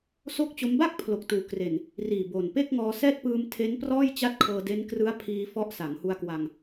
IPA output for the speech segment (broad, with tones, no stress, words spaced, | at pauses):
so˥˩k̚t͡ɕo˦˥m ba˥˩k̚ pʰlo˨˩k̚tuː˨˩ kre˨˩n | riː˨˩bo˨˩npe˥˩k̚ŋɔː˧ sɛː˥˩t̚pɯː˧mtʰe˦˥nprɔː˥˩j t͡ɕa˥˩t̚kʰɤː˧de˦˥n krɯ˦˥a̯pʰiː˧fɔ˦˥ʔ sa˩˦ŋhu˧a̯kwa˧ŋ